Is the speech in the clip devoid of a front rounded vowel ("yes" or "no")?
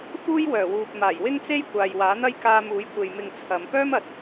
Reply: no